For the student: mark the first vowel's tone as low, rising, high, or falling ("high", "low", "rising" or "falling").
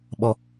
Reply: high